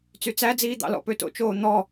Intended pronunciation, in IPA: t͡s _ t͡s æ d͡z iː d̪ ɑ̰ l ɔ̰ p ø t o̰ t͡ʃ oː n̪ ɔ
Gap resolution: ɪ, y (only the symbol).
y